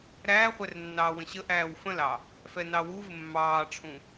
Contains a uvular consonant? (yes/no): yes